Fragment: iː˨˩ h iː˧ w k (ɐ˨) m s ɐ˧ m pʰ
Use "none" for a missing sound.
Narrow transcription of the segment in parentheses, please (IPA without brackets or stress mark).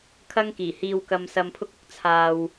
ɐ˧